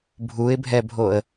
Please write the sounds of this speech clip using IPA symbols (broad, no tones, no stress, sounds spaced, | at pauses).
bʱ u ɪ̯ bʱ ɛ bʱ o ə̯